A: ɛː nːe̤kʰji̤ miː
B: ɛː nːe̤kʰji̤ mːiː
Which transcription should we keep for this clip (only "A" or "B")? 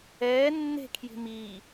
A